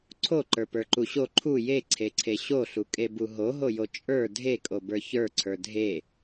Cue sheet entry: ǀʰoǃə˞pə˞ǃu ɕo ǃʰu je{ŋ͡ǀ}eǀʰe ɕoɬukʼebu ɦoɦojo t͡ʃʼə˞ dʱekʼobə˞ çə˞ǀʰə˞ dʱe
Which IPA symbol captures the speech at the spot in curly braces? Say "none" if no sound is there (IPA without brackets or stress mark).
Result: ǀʰ